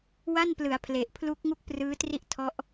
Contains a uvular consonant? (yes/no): no